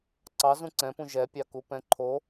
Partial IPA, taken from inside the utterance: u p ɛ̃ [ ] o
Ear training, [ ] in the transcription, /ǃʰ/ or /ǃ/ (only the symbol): ǃʰ